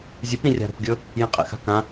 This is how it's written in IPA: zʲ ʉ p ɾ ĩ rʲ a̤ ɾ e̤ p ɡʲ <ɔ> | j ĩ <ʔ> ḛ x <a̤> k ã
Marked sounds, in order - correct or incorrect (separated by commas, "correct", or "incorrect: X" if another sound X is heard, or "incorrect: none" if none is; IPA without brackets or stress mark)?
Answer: incorrect: ɵ, incorrect: qʼ, correct